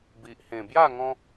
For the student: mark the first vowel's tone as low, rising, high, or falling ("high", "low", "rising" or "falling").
low